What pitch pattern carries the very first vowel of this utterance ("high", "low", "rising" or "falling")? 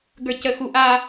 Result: high